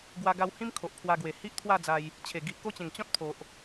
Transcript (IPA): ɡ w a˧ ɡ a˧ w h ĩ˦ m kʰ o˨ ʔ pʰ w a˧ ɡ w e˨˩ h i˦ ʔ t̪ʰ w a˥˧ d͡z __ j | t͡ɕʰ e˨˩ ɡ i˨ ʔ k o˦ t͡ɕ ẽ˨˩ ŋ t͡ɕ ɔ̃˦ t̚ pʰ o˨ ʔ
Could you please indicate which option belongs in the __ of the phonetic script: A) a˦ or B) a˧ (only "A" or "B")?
B